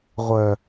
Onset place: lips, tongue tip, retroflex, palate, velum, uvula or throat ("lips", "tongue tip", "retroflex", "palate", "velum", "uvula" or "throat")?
uvula